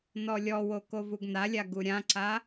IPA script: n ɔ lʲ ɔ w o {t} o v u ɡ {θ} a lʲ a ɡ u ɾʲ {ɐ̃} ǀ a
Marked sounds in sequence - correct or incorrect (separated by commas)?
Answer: incorrect, incorrect, incorrect